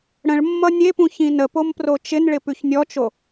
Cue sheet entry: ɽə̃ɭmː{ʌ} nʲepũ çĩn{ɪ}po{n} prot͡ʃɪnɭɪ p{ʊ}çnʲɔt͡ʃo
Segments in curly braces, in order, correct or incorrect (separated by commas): correct, incorrect, incorrect, incorrect